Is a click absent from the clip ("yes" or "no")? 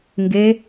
yes